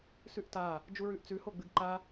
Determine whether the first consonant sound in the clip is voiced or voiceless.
voiceless